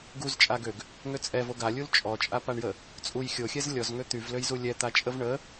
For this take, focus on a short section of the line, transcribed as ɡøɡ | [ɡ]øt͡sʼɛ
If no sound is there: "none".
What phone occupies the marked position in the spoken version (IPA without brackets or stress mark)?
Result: ŋ